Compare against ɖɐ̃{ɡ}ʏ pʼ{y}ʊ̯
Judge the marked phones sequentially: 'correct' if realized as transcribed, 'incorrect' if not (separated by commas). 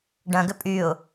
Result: correct, correct